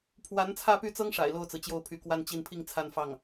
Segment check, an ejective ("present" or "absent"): absent